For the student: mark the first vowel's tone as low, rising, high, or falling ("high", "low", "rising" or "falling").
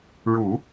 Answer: low